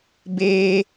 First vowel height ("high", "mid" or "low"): mid